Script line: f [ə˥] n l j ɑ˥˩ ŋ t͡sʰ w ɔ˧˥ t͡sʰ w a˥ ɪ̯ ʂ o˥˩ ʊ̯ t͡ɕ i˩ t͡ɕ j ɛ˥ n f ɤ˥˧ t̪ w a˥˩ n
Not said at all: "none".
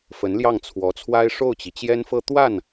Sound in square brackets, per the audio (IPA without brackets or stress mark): ə˧˥